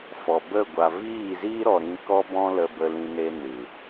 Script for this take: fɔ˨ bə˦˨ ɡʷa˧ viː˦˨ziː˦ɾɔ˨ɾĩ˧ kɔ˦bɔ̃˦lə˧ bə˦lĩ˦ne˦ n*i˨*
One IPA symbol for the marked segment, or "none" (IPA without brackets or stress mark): ɨ˨